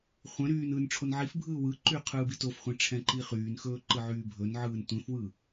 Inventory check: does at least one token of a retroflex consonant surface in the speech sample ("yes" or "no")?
yes